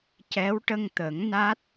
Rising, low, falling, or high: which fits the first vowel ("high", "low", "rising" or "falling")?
rising